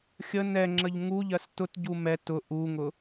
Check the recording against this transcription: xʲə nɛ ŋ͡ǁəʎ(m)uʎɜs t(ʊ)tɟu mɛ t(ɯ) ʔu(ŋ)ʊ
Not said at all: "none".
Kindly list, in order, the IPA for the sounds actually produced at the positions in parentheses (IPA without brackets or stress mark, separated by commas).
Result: ŋ, ʊ, ʊ, ŋ